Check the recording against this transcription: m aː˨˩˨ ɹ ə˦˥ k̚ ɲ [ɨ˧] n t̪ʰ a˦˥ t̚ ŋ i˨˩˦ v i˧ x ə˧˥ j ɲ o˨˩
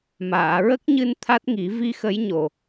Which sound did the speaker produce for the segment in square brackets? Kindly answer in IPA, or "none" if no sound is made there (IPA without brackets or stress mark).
ɨ˧